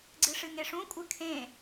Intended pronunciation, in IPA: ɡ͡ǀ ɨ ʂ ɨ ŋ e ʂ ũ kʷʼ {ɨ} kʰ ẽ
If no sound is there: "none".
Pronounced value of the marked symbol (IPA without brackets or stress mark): ɨ